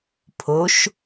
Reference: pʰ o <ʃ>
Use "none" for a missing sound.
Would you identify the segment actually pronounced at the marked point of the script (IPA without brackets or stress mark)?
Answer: ʃ